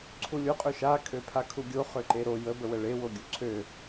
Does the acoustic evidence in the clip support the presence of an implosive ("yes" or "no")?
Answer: no